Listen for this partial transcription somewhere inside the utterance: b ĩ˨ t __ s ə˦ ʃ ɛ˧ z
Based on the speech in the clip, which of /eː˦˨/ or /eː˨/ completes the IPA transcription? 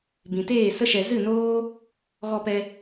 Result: eː˦˨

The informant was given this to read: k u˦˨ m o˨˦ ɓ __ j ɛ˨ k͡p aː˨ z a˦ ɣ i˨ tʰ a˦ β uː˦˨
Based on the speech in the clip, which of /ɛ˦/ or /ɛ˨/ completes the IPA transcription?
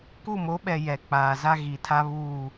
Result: ɛ˨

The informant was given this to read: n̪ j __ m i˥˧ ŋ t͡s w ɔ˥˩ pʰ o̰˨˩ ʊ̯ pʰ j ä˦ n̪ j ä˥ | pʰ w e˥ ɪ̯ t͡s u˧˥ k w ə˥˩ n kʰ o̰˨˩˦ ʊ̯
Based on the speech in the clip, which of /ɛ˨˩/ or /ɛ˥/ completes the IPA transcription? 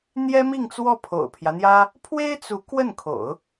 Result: ɛ˥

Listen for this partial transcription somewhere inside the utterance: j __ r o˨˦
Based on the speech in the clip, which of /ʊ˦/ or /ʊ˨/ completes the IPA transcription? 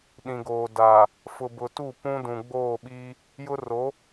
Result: ʊ˦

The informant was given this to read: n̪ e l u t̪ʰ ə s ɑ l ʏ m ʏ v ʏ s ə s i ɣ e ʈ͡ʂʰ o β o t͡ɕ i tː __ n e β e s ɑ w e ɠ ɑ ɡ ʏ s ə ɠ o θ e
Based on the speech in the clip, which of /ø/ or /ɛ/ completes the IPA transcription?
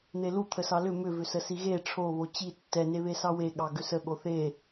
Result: ɛ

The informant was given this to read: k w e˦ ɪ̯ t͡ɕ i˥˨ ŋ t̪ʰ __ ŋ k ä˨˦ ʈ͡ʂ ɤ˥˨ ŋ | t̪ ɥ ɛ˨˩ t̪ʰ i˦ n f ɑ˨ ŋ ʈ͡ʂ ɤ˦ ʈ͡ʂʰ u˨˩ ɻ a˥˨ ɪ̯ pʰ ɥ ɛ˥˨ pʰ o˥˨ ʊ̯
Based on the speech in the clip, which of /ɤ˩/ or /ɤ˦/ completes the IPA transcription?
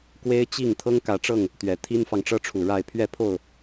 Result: ɤ˦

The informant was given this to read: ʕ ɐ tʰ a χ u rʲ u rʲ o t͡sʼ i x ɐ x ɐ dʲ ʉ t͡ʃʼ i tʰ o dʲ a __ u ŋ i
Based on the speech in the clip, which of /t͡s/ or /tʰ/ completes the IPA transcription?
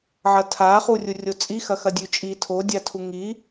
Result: tʰ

